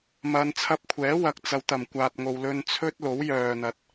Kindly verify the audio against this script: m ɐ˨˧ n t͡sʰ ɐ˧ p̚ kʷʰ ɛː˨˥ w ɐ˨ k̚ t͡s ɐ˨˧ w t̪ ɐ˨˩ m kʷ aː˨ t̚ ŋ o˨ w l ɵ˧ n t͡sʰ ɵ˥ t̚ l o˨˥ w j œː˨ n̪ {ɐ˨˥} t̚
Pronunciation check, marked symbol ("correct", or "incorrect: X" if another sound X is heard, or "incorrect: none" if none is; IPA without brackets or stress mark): correct